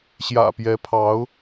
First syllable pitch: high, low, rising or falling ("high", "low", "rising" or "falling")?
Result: low